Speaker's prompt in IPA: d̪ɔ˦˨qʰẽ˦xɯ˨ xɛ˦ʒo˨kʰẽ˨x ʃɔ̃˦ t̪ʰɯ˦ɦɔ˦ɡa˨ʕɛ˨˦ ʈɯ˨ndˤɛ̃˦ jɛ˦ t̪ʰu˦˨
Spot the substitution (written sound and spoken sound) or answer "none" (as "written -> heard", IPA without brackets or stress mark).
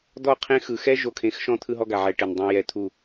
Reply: none